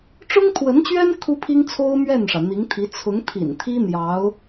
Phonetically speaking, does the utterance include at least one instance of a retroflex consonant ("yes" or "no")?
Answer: yes